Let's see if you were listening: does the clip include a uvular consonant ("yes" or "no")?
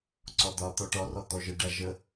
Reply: no